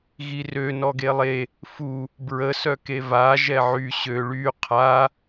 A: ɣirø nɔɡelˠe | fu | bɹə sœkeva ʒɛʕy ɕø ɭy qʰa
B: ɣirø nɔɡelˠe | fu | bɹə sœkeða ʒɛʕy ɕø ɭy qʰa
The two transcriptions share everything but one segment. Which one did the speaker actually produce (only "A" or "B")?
A